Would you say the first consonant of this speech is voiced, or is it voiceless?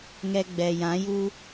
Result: voiced